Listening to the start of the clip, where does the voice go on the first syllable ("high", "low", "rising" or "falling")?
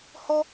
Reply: high